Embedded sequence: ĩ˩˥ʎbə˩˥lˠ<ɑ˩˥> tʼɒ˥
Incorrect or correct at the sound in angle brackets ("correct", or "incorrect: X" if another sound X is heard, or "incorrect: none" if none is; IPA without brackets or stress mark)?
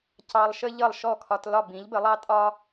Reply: incorrect: ɑ˥